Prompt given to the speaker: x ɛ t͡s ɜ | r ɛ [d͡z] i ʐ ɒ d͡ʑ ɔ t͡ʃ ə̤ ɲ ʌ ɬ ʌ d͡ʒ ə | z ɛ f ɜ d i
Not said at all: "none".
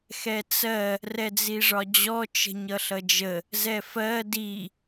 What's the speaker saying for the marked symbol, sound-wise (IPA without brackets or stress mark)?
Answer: d͡z